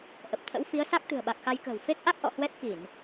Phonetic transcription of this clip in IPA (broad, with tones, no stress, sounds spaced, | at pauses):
ʔ ə˨˩ p̚ t̪ʰ ə̰˧˥ w f i˨˦ ə̯ s a˦˥ k̚ t̪ ɨ̤˨˩ ə̯ ɓ a˨˩ k̚ x a˧ j k ə̤ː˨˩ w f e˦˥ k̚ ʔ a˦˥ k̚ ʔ ɔ̰˧˨ h w ɛ˦˥ t̚ k i˧˩˨ n